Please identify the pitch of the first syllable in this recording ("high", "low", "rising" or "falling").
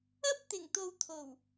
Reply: high